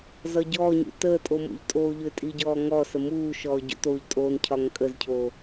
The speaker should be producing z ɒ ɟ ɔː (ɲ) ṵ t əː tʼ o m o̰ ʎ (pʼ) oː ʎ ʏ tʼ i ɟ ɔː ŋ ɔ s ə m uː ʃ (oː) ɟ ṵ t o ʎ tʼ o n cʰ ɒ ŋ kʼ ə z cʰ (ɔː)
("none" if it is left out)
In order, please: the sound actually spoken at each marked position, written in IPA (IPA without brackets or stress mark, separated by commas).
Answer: ɲ, tʼ, ɔː, oː